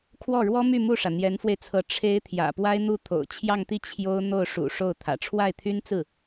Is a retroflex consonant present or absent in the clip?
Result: present